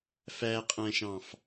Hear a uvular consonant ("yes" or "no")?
yes